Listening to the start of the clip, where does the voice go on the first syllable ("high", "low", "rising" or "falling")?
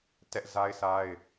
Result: high